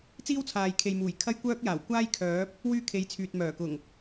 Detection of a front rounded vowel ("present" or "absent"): present